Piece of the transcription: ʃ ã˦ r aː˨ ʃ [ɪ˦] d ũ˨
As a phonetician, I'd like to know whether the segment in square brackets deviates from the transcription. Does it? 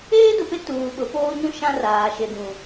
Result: yes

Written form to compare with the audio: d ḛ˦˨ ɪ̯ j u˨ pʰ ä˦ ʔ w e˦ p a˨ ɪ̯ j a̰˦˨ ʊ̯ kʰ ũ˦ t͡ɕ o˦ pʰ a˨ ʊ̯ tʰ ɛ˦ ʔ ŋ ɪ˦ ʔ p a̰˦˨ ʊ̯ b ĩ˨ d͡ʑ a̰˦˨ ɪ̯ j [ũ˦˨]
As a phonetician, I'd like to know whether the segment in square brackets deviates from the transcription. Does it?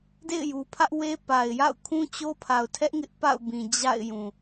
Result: yes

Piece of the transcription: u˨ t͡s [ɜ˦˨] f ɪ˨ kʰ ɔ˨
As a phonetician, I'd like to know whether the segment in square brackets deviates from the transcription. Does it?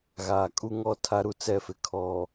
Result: yes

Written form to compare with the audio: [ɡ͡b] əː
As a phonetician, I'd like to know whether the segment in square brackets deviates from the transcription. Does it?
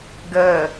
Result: yes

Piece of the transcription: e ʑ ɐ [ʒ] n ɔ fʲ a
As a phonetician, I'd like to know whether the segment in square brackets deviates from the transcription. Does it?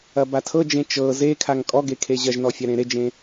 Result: no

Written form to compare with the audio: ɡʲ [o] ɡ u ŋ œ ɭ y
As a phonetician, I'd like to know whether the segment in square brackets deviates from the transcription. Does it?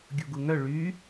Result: yes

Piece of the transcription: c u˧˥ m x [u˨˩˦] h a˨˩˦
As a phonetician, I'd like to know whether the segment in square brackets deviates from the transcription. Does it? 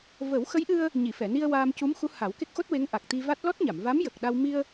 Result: yes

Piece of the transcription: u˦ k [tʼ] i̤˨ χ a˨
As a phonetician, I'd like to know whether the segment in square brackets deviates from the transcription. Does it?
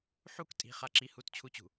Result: no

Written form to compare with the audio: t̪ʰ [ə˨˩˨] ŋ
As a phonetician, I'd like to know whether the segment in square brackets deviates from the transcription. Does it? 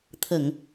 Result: no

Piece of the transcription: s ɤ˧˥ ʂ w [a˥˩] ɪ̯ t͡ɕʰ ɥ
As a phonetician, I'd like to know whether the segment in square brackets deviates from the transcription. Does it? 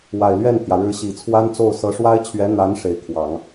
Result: yes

